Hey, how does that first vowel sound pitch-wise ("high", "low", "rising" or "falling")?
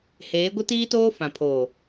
rising